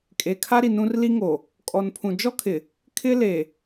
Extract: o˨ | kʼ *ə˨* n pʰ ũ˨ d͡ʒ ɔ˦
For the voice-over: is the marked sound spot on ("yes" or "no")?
no